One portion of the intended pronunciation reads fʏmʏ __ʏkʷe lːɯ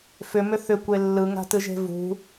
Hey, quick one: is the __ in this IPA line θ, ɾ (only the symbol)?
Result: θ